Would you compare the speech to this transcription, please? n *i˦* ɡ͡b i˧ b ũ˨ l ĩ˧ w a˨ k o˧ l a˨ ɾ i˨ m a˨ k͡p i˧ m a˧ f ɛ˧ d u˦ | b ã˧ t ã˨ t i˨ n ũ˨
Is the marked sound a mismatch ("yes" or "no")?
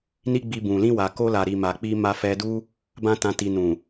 no